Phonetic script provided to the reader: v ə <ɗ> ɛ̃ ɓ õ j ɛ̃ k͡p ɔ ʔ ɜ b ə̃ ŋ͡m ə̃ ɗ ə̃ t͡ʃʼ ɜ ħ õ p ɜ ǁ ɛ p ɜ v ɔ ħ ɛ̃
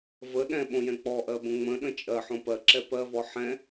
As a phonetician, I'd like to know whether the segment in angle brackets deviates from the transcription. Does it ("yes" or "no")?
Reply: no